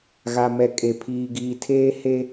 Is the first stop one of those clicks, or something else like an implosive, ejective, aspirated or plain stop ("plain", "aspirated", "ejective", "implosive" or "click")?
ejective